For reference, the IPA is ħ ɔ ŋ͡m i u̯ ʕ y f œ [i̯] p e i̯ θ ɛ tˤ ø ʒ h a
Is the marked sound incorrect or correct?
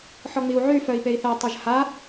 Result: correct